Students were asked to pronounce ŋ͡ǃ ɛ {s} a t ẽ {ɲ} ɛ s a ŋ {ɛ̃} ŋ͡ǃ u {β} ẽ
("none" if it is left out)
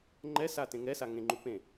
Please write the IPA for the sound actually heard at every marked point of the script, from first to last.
s, ŋ, ẽ, p

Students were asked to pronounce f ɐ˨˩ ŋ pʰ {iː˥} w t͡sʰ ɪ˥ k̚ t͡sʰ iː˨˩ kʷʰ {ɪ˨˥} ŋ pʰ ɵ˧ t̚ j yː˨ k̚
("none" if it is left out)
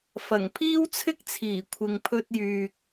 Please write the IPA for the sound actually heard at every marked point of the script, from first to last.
iː˥, ɪ˨

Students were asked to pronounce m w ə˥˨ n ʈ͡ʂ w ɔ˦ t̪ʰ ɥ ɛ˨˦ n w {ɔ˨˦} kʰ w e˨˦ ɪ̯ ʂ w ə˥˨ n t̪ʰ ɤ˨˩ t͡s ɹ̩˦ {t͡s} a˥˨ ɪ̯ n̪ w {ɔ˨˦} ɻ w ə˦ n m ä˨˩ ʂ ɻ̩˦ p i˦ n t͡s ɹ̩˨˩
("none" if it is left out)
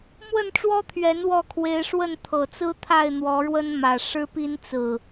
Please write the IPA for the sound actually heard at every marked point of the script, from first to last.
ɔ˥˨, t̪ʰ, ɔ˨˦

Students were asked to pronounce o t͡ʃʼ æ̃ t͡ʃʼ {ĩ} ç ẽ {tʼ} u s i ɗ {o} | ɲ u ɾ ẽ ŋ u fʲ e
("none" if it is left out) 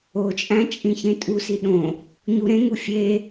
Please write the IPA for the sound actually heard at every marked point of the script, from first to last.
ĩ, tʼ, õ

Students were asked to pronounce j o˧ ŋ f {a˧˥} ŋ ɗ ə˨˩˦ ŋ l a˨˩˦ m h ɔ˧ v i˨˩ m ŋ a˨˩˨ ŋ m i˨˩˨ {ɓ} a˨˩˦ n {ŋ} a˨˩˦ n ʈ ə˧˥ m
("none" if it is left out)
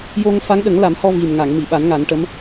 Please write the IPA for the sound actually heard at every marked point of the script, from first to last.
a˧˥, ɓ, ŋ

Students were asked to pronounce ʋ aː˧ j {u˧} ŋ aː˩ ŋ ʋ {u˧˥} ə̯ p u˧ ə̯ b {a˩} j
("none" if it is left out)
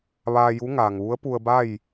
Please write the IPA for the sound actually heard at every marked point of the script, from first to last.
u˧˥, u˧˥, a˥˨

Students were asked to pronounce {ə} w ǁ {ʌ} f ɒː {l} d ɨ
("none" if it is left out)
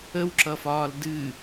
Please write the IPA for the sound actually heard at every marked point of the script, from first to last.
ə, ʌ, l

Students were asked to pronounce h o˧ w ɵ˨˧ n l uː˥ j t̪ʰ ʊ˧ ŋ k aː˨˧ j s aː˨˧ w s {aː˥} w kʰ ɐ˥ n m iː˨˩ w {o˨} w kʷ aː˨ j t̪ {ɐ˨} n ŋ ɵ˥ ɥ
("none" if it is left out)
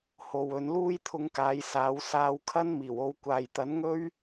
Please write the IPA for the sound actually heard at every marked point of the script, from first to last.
aː˧, o˧, ɐ˨˥

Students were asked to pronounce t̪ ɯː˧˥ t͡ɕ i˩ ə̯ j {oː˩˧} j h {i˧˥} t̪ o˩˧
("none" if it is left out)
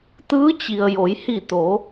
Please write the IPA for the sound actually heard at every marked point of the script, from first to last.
o˩˧, i˧˩

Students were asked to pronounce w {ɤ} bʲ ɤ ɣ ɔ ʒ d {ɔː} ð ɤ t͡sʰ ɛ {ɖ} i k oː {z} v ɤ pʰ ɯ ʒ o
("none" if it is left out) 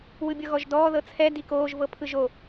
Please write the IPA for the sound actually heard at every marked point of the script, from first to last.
ɯ, ɔː, d, ʒ

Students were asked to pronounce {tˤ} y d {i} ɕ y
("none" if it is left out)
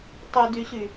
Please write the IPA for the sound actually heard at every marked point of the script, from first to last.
tˤ, y

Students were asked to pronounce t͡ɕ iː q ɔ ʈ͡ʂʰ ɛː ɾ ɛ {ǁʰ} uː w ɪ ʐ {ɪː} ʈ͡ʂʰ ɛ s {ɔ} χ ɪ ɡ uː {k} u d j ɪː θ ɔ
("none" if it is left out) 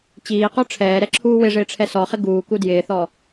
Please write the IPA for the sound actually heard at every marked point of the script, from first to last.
ǁʰ, ɪː, ɔ, k

